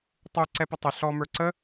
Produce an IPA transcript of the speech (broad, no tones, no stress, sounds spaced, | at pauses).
tˤ u ǀ ɛ p ə tˤ ɪ ɬ ɔ m ə˞ ǀ ə